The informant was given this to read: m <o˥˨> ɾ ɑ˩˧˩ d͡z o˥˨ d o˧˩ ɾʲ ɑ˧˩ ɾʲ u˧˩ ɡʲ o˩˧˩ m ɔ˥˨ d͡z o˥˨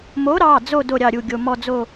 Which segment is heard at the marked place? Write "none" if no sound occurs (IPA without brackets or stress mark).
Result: o˨˥